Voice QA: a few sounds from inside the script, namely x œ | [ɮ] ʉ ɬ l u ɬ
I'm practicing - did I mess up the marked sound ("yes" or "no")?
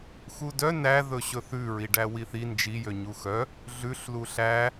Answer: no